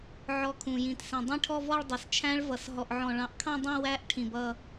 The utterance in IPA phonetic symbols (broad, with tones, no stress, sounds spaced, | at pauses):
ʕ ɔ˧˩ kʰ ũ˩ j ĩ˩ t s ĩ˩ dˤ ĩ˥˧ ʈʰ ɔ˥˧ v ɔ˥˧ ɭ dˤ ʌ˩ s t͡ʃʰ æ̃˦˥ ɭ v ʌ˩ s ɦ ɔ˧˩ ʔ ʕ ɔ̃˧˩ ɭ ɑ̃˧˩ ʔ kʰ ɑ̃˥˧ dˤ ĩ˥˧ w æ˦˥ ʔ ʈʰ ĩ˩ b ʌ˧˩